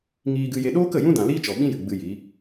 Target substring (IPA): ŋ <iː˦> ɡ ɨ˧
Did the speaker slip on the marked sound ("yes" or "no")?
yes